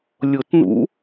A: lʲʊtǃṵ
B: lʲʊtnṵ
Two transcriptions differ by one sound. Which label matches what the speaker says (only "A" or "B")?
B